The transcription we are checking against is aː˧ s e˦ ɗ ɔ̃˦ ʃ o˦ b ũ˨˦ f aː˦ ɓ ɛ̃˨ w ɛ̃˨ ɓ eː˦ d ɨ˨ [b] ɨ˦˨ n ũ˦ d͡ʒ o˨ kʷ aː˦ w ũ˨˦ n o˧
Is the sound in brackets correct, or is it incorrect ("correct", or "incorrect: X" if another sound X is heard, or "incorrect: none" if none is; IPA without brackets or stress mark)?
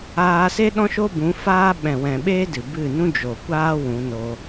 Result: correct